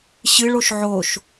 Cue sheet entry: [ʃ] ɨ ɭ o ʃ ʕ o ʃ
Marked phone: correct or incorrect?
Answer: incorrect